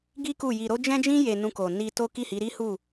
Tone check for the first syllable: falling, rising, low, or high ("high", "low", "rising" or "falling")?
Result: high